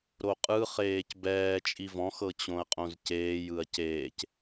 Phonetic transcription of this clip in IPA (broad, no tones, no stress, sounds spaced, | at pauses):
ɾ o qʼ ɯ χ eː c b ɛː t͡ʃʼ i v ɔ̃ x ɤ t͡ɕ õ ɐ̯ qʼ õ z c eː j ɯ ɐ̯ c eː c